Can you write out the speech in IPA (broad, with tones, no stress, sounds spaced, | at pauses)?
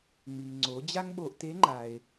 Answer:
ŋ͡m i˩ ŋ ŋ͡ǀ o˩˧ d͡ʑ a˥ ŋ ɓ o˧ ʔ t e˧˥ ŋ͡ǃ a˩ e̯